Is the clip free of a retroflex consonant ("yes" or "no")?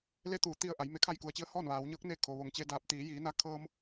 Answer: yes